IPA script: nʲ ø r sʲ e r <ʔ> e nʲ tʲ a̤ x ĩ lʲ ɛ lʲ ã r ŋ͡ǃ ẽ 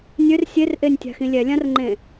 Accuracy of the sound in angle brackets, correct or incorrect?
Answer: correct